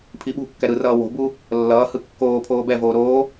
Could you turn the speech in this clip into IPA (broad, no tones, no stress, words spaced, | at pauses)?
pʰiɓṳkːɛ ɾɯrʌː wo̤bu | lːʌːhɯ kːoːpʰoː bɛvoː ɾoː